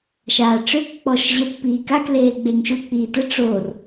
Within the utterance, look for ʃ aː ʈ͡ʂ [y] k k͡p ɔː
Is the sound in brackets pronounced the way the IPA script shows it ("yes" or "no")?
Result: no